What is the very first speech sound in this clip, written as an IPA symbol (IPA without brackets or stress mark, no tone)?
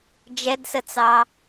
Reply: d͡ʒ